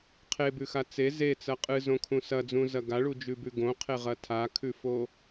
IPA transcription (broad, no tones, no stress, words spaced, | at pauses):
qʰebʉxa t͡se zet͡sɐ qʼɨzõkʰũ sɐd͡zũzɐ ɡaɭud͡ʒʉbʉ ɡõqʰeʁɐ tʰakʰʉfo